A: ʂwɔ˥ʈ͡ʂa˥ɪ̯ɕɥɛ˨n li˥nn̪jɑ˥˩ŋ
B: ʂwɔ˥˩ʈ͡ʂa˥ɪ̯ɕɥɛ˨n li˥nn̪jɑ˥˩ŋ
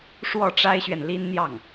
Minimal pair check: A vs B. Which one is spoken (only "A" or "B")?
B